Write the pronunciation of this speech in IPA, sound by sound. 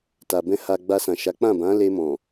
t a˨ b ɛ̃˧ h a˨ ɡ͡b a˧ s ã˨ ʃ a˨˦ k͡p ã˦˨ b ã˨˦ l e˧ m ɔ̃˨

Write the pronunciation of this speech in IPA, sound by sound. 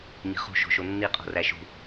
ɲ i̤ χ ṳ ʃ o̤ ʃ o nː i qʼ o̤ r æ ʃ ṳ

